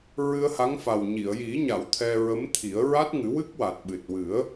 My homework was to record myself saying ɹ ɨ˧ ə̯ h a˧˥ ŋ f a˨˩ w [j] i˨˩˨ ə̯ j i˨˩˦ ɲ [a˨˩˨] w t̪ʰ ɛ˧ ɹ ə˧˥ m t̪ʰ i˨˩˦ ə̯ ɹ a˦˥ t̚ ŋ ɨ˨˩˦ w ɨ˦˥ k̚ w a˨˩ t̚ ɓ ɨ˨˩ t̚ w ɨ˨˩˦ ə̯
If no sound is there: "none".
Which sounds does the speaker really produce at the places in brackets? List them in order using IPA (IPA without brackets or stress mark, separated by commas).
ɲ, a˨˩˨